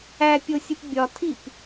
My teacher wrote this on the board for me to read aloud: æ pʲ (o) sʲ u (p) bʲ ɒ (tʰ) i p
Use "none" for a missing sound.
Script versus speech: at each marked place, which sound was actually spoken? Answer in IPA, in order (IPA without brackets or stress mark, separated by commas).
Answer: o, p, tʰ